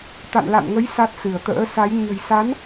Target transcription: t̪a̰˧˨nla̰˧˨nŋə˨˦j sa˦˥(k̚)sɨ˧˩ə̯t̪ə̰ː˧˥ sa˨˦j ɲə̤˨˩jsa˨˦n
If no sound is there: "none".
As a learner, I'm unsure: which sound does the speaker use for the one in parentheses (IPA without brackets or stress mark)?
t̚